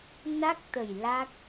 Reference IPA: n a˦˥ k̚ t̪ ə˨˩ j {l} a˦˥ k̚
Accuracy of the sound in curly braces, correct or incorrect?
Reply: correct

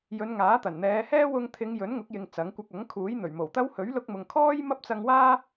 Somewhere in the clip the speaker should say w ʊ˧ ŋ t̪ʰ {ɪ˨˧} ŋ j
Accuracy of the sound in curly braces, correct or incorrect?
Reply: correct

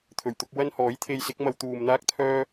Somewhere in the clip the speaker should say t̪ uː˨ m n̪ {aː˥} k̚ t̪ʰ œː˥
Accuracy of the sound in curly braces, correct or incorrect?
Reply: correct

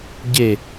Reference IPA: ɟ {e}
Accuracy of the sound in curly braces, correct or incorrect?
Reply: correct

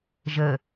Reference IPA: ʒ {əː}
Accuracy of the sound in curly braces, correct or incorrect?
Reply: correct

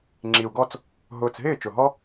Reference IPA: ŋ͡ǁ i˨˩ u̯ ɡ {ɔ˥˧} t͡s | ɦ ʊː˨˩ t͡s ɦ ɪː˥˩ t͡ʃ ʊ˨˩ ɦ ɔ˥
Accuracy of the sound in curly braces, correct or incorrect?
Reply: correct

